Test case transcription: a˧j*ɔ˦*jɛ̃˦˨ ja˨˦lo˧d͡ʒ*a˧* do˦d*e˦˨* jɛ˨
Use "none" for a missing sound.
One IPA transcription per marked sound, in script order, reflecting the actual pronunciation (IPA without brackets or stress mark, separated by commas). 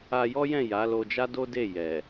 ɔ˦, a˦, e˦˨